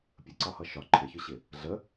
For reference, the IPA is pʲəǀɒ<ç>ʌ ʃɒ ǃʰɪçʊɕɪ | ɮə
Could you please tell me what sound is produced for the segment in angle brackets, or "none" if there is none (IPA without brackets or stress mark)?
h